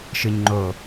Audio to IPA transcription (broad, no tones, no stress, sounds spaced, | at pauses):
ʃ ɯ ɲ ŋ͡ǃ o